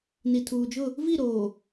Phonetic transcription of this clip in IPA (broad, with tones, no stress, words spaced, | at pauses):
ni˨tʰuː˨d͡ʒʊ˦˨ | vi˦˨ɾoː˨